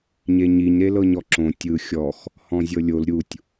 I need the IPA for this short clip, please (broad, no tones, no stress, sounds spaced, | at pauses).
ɲ e ɲ i ɲ ɾ e l ɤ ɲ ɔ ǁ õ tʲ ɯ xʲ ɔ x | h ɔ̃ zʲ ɤ lʲ o l ɾʲ u tʲ